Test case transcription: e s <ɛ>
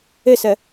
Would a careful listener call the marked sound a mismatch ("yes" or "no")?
no